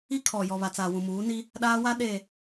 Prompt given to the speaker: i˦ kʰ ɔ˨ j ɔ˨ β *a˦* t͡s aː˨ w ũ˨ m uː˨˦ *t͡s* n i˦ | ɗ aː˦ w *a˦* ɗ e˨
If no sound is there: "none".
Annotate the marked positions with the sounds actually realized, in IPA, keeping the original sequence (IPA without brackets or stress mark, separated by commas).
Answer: a˨, none, a˦